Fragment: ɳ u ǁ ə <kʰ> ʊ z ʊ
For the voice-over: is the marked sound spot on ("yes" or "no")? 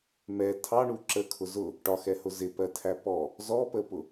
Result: yes